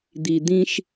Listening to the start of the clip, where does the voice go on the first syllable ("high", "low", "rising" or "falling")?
low